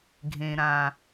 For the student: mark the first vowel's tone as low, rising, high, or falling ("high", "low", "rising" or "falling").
low